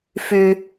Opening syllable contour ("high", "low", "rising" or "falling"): high